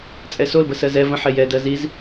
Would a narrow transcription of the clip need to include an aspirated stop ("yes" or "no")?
no